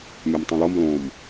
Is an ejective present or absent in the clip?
absent